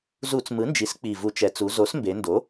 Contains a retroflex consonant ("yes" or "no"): no